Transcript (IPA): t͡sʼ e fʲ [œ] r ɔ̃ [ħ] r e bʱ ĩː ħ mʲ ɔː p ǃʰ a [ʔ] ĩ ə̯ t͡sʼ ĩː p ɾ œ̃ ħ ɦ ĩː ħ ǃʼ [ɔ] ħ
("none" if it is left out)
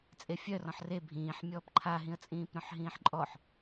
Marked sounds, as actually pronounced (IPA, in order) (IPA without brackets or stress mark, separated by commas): œ, ħ, ɦ, ɔ